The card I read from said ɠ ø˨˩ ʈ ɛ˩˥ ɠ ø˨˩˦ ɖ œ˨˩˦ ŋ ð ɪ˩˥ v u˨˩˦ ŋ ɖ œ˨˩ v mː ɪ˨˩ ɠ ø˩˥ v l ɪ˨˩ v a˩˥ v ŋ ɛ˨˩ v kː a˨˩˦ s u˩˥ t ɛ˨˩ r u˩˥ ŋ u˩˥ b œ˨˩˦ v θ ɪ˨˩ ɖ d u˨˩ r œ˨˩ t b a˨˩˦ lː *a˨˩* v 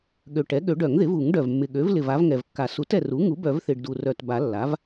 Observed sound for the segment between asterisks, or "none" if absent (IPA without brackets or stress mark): a˩˥